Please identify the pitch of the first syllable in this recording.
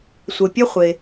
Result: low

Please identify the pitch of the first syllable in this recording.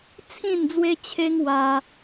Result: falling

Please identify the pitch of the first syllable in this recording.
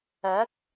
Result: rising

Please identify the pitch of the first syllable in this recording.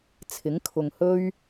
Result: rising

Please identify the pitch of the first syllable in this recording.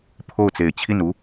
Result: falling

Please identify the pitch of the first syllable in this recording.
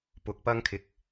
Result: rising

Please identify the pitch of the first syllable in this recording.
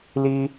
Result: high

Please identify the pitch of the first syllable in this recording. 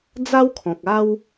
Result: high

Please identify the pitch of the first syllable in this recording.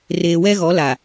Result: low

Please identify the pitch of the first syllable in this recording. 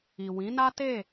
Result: low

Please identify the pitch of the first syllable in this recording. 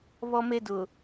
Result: high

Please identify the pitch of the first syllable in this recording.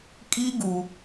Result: high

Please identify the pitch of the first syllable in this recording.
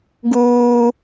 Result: high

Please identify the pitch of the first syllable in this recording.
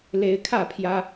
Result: rising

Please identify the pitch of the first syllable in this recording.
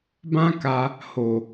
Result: high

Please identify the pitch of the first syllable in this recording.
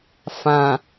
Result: low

